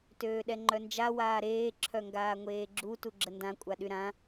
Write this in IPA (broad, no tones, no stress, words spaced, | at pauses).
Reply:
tøːɗɛŋ͡ǃœnd͡ʒa waːɾeː ǁʰœŋɡaːŋʷeːɡ͡ǁu tuɡ͡ǁəndã kʷʼaɗyɾã